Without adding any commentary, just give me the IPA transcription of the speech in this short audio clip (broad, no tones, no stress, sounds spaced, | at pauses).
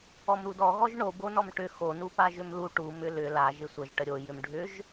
ɔ m ɾ u d ɔ ɣ ɔ ʒ ɳ o b o n ɔ m ʈ ʏ x o n u p a ʒ ʏ m l u ʈ u m ʏ l ʏ l a ʒ ɪ sʷ ə ʒ ʈ ə ɾʲ o j ʏ m ɖʱ ʏ ʒ